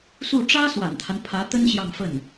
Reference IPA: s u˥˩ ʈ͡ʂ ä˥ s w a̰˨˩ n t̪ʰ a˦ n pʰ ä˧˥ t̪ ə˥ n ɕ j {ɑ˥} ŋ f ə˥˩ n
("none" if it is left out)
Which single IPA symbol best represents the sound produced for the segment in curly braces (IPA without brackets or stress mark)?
ɑ˥˧